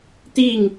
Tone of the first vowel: falling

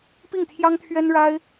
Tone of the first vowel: falling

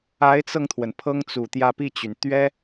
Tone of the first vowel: rising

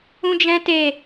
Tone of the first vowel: high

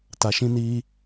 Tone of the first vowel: low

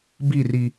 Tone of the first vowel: falling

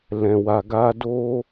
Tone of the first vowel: low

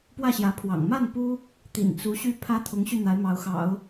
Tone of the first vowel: falling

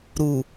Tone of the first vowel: low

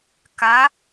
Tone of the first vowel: rising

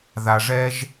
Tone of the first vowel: low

